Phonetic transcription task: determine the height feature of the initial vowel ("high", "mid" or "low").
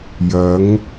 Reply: low